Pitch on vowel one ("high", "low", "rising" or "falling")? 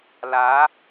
rising